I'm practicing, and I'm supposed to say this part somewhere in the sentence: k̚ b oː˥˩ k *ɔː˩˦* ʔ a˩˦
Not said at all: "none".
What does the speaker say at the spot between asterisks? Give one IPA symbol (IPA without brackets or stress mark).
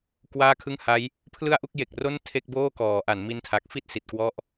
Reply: ɔː˩˦